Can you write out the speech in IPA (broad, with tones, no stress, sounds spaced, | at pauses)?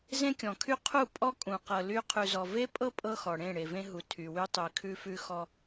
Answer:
z ẽ˦ kʲ ɔ̃˨ kʰ y˦ qʰ u˦˨ pʼ ɔ˦ kʼ ũ˨ q ɤ˨ l y˦ qʰ ʉ˨ z ɔ˨ v e˦ pʼ ɤ˦ pʼ ɤ˦ x ɔ˨ ɽ ẽ˦˨ ɽ e˨ v ẽ˦ ɦ u˨ tʰ y˨ w y˦ tˤ y˨ kʰ ʉ˦ f ʉ˦ x ɔ˦